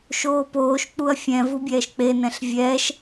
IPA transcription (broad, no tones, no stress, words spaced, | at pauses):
ʃoːpoːʃk͡puɐ̯ fʲɛ̃ vubʲɛːʃk͡penɛ̃ɬ vʲɛːʃ